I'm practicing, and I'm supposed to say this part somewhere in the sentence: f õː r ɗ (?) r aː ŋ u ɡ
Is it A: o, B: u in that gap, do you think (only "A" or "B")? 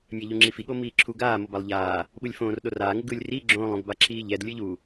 A